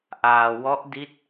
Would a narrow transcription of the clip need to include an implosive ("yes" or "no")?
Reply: no